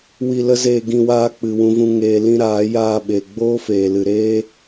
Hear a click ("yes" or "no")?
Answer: no